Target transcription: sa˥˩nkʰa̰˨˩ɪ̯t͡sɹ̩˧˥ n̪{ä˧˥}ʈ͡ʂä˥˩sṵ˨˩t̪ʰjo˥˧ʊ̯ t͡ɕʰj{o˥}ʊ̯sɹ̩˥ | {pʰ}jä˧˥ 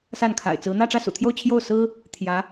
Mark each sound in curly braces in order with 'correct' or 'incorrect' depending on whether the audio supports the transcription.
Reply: incorrect, incorrect, incorrect

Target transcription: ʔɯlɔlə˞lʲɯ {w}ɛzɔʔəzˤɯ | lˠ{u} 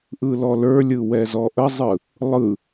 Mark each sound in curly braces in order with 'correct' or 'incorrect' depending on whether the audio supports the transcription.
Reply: correct, incorrect

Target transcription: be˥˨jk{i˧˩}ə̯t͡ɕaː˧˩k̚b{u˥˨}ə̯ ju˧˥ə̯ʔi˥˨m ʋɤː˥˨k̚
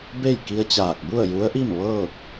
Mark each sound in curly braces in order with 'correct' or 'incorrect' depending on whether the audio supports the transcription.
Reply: incorrect, correct

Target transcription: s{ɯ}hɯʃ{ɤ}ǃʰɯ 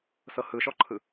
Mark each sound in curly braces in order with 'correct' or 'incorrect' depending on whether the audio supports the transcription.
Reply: incorrect, incorrect

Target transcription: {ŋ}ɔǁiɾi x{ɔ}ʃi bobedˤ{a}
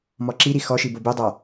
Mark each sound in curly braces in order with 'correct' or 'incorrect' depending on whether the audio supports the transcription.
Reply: incorrect, correct, correct

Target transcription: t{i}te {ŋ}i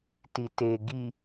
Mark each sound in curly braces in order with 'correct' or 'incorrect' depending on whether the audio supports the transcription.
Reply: correct, incorrect

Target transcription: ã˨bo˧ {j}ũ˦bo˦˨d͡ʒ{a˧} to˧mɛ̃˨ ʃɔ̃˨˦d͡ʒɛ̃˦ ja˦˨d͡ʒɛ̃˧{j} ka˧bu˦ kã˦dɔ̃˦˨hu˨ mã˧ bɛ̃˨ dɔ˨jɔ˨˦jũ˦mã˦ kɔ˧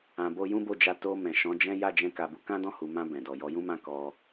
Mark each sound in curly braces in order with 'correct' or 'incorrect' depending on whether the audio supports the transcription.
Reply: correct, correct, incorrect

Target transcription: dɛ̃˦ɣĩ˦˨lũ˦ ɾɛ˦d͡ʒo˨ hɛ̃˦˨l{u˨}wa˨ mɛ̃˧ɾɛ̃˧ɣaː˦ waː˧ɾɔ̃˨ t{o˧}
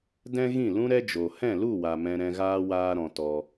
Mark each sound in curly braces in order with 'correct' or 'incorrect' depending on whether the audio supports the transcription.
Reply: incorrect, incorrect

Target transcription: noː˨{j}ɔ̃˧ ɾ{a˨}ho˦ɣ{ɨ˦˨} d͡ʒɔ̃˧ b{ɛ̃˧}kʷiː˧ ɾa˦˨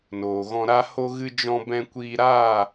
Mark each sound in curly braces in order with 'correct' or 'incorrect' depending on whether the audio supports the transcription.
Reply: incorrect, incorrect, incorrect, correct

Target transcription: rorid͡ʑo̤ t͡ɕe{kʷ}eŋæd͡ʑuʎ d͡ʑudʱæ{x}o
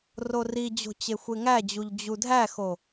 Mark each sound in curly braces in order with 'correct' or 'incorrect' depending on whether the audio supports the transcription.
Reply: incorrect, correct

